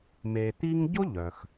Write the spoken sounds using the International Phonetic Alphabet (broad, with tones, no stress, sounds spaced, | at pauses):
m e˨ t̪ i˥ ŋ ɟ ʊ˥ ʎ œ˩ x